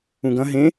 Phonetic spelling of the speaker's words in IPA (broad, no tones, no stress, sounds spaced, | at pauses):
ũ ɡ ɐ̃ ɦ ẽ